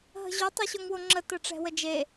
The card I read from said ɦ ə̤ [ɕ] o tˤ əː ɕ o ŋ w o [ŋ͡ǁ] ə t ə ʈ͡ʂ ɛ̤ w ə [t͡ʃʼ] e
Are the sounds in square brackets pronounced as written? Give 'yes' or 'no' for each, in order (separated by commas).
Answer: no, yes, no